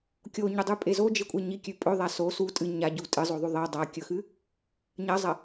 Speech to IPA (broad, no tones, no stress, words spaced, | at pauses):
kʲoɲudˤʉpʼe zod͡ʒekʷʼe ɲikʲʉ pʼɵðˤa so su tʼɨ ɲaɟu tʼɨzˤoðˤʉ ðˤe dˤakʲɵxɨ | ɲɐzˤɐ